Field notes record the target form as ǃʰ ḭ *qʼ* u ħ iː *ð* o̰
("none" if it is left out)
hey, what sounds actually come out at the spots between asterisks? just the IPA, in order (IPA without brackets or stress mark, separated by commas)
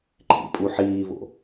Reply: pʼ, β